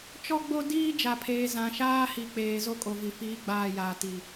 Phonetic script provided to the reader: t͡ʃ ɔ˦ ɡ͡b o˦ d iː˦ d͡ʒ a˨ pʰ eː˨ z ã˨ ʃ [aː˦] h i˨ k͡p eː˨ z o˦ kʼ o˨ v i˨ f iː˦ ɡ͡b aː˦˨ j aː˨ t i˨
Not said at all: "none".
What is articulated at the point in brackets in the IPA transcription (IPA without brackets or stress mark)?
aː˦